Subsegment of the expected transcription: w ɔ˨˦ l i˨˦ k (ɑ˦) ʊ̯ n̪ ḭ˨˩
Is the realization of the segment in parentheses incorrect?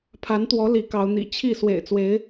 yes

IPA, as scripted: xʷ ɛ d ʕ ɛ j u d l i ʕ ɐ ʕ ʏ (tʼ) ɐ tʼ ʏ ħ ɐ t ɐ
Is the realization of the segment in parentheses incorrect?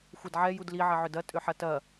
yes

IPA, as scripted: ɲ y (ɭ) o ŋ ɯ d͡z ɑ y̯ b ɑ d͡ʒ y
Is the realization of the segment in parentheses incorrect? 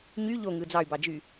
yes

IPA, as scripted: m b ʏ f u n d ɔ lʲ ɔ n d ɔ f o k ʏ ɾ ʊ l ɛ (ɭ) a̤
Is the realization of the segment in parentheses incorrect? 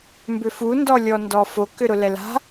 yes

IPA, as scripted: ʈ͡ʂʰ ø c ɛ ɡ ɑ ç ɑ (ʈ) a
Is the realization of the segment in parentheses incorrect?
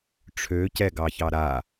yes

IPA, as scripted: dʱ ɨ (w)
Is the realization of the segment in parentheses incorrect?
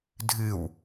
no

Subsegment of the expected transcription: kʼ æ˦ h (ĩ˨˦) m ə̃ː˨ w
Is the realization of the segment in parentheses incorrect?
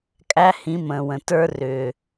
no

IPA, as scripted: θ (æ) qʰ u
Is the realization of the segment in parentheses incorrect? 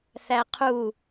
no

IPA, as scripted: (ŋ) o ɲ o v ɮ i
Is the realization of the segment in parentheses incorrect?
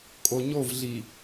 yes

